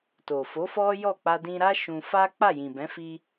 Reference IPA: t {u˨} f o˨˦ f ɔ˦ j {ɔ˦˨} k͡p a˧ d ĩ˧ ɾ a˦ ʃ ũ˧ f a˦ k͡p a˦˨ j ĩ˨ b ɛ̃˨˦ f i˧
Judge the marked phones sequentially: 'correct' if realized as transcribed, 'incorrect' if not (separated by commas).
incorrect, correct